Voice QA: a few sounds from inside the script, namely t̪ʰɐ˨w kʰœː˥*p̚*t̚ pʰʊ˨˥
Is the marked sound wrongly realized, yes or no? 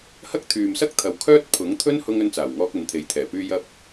yes